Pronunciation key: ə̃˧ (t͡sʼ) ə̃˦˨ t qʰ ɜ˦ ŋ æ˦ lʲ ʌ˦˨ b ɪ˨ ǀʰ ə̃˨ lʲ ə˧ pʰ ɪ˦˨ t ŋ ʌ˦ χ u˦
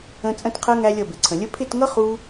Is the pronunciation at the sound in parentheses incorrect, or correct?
correct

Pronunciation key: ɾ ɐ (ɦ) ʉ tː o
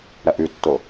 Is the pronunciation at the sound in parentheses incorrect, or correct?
incorrect: ʔ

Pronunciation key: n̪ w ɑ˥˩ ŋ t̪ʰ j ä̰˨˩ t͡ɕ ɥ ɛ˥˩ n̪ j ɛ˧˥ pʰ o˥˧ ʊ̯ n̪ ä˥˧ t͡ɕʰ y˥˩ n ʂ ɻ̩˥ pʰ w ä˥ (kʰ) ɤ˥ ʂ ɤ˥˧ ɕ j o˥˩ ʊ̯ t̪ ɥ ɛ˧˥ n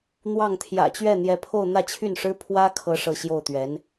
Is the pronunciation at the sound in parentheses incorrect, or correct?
correct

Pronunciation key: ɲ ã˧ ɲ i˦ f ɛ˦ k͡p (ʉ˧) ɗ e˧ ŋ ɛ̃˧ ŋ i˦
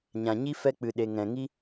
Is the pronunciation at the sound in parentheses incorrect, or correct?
incorrect: ɨ˧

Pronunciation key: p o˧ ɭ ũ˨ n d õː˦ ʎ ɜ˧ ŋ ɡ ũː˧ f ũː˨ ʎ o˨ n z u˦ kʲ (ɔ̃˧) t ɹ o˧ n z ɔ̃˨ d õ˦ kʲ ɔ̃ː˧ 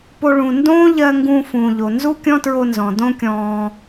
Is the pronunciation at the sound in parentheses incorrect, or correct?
incorrect: ɔ̃˦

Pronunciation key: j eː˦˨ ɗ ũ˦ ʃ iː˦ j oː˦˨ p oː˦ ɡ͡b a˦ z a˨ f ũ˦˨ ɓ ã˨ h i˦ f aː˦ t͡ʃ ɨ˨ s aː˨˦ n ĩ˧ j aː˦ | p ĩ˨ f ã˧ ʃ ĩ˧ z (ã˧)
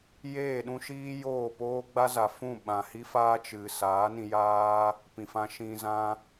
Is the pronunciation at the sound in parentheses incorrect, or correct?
incorrect: ã˦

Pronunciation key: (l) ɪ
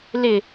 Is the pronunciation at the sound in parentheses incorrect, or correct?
correct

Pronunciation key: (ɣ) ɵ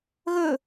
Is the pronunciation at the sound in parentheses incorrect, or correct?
correct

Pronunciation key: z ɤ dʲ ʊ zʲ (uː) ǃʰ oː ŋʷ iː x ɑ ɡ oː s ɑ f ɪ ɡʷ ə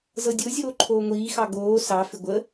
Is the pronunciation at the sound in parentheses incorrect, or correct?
incorrect: oː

